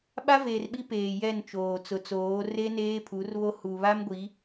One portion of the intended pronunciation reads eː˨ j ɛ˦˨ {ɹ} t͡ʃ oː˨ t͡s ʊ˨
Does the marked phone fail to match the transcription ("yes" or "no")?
yes